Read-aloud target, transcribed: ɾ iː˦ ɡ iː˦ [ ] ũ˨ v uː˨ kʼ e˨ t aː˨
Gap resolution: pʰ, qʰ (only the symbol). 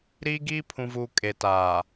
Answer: pʰ